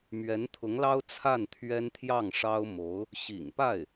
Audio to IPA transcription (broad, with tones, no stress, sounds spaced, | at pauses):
m ɥ ɛ˧˥ n t̪ʰ ʊ˧˥ ŋ l ɑ˥ ʊ̯ t͡sʰ a˥˩ n t̪ʰ ɥ ɛ˥ n t̪ʰ j ɑ˥˩ ŋ ʂ ɑ˥ ʊ̯ m o˧˥ ʊ̯ | ɕ ḭ˨˩ ŋ p a˥˩ ɪ̯